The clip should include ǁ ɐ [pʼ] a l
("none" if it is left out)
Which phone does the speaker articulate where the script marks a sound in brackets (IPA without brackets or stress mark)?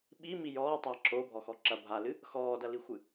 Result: bʱ